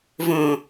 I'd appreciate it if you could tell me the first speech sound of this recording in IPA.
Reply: v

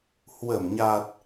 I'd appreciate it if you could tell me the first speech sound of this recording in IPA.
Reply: h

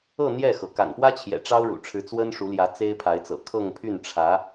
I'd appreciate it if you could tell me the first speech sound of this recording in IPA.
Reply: ɤ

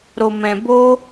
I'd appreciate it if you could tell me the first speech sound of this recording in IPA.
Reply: ɾ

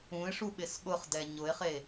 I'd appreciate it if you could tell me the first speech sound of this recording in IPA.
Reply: ũ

